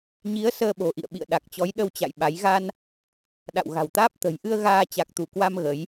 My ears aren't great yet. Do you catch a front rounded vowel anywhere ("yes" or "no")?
no